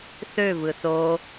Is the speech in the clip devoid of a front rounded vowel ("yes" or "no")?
no